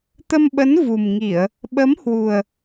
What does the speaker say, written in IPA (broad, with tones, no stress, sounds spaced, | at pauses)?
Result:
t̪ ə˧ m ɓ ə˨˦ n v u˨˩ m ŋ i˧˩˨ ə̯ | ɓ ə˨˦ m h w u˨˩ ə̯